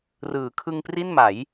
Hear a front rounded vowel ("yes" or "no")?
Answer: no